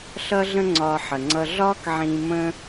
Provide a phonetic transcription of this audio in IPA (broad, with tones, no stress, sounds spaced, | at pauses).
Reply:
ɬ ʌ˦ ɮ ə̃˦ ŋ͡ǀ ɒː˧ ħ ə˨ ŋ͡ǀ ʌ˧ ɮ ɒː˦ k ʕ ĩː˧ m ə̃˦